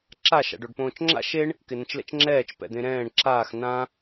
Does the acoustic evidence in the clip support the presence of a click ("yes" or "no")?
yes